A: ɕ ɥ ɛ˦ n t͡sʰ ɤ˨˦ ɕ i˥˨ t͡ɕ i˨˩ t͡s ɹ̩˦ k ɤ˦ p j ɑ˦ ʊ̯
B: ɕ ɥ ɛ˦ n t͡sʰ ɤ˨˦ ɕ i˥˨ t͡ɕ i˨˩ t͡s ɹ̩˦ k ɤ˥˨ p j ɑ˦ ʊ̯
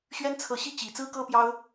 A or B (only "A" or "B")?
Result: A